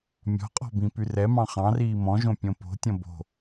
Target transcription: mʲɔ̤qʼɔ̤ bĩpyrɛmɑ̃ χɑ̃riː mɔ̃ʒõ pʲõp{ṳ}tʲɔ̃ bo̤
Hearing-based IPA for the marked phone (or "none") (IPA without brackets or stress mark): o̤